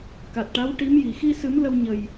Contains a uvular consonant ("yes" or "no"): no